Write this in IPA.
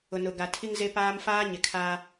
ʊ˨ n ʊ˨ ɡ a˨ tʰ i˦ ŋ z e˦ p aː˦ m f aː˦ ɲ ɪ˨ kʰ a˦

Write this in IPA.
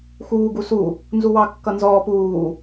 x uː ɡ u s u | n z u w ɑ kː ʌ n z ɔː p uː

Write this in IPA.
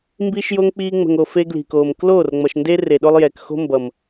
m b iː˦ ʃ j o˦ ŋ k͡p iː˦ ŋ͡m ə̤˨ ŋ o˨ f e˦ ɡ l i̤˨ k oː˨ m k l oː˦˨ r ŋ͡m ʌ˨ ʃ n d e˦ r e˨ ɗ o˦ lˠ j ɛː˨ k x o̤˦ m b ʌ˨ m

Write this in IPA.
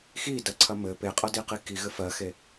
x i d ɐ ǀʰ ɐ m ɘ p e qʼ ɐ d i q i k i ɣ ɘ f ɜ x e

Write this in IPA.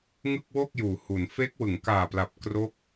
ŋ ɯ˥˩ k̚ w o˥˩ k̚ j uː˩˦ h u˩˦ n f e˦˥ k̚ w ɯ˩˦ ŋ k aː˨˩ p l a˨˩ p̚ k r o˦˥ k̚

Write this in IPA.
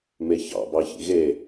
m e ç ɑ̰ b ɑ ç ḭ ɣ e

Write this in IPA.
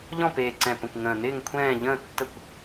ʎ ɔ̃˥˨ p eː˨˩ ǀ ɛ̃˨˩ p ə̃˨˩ kʷ ŋ ə̃ː˨˩ n ɪː˥˨ ŋ kʷʰ ɛ̃ː˥˨ ʎ ə̃ː˥˨ tː ə˥˨ kʷ

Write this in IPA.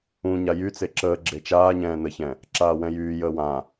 ũ ɲ a j y t͡s e ǁ əː ɡ͡ǁ e t͡ʃ aː ɲ ɛ̃ː n ə ç ɛ̃ | ǁ aː w ɛ̃ j yː j əː w ã

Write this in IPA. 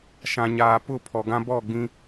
ʃ ã˨ ɲ aː˨ p ʊ˦˨ pʰ ɔ˨ ɡ ã˦ b ɔ˦˨ ɡ͡b ĩ˦

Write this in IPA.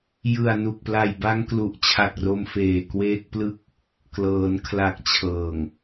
j ɯ˨˩ a̯ n u˨˩ k̚ p l a˨˩ j b a˦˥ ŋ k l u˨˩ ʔ t͡ɕʰ a˨˩ k̚ r o˧ m f eː˨˩ k w eː˦˥ k̚ p l ɯ˥˩ k̚ | k l ɤː˩˦ n kʰ l a˨˩ k̚ t͡ɕʰ ɤː˨˩ ŋ

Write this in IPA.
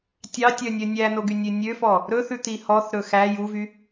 tʲ ɑ tʲ œ nʲ œ nʲ æ n o ɡ y nʲ ø nʲ ø f ɔ | ɾ ɵ θ ʉ t̪ i h ɔ θ ɾ ɵ x æ j u v y

